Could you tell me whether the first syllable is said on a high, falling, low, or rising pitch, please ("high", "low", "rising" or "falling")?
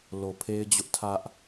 low